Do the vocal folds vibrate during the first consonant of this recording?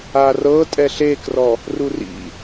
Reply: yes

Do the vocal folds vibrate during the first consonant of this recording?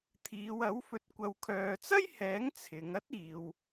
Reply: no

